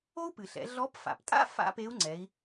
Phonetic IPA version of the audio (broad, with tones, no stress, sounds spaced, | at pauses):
o˥ u̯ p ɨ˩ ɬ ɛ̰˩˧ ɮ ɔ˧˥ p f a̰˩ p tʼ a̰˥ f a̰˥ p e˧˥ u̯ ŋ͡ǀ ɛ˩˧ i̯